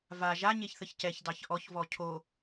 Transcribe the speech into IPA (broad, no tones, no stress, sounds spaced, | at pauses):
v a ʒ a ɲ e ç θ ə ç c ɛ ç d ɑ ç ʔ ɔ ç v ɔ cʰ o